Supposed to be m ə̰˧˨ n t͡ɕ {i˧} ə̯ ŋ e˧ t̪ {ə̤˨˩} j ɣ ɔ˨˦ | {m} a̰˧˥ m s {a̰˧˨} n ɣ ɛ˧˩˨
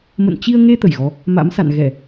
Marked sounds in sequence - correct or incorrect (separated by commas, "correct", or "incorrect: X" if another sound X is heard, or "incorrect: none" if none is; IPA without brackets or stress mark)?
correct, incorrect: ə˧˩, correct, correct